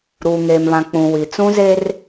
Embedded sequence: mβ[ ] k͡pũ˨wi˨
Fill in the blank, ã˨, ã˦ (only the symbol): ã˨